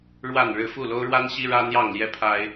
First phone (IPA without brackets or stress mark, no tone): ɻ